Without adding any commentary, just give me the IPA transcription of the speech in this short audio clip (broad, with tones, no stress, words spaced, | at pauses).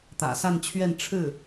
t̪ä̰˨˩sa˥˧nt͡ɕʰɥɛ˥˧n ʈ͡ʂʰɻ̩˥˩